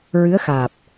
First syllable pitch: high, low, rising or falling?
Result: rising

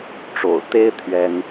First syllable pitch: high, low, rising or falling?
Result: low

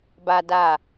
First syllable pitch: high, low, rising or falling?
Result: high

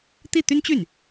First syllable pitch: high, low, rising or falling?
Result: falling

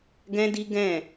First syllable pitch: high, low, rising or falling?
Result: high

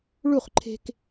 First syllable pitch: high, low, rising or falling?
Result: falling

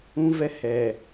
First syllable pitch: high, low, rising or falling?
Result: high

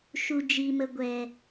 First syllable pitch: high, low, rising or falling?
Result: low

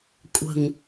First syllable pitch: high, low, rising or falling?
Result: low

